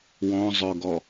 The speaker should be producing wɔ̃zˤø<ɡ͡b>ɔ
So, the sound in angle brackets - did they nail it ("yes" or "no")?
no